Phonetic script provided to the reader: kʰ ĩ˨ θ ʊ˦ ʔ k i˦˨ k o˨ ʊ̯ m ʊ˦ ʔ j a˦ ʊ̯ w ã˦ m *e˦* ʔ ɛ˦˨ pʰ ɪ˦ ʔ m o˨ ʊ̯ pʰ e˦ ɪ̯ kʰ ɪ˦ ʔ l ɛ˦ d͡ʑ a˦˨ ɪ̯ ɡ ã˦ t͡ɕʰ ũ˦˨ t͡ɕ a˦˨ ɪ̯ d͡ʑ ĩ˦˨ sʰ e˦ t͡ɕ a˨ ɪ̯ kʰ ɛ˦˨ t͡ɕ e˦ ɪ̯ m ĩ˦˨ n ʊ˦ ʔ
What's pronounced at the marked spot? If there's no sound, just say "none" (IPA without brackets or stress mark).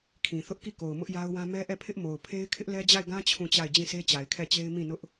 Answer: ɛ˦